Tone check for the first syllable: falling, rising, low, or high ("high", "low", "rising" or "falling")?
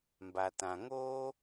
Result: low